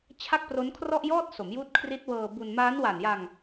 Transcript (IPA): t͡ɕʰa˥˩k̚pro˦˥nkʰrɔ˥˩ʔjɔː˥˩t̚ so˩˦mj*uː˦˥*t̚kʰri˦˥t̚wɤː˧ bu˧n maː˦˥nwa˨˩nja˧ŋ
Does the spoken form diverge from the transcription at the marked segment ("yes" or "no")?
no